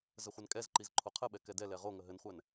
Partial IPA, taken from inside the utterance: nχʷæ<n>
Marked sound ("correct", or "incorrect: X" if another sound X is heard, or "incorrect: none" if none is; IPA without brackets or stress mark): correct